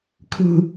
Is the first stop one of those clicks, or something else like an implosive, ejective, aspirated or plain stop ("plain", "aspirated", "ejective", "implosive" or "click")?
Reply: aspirated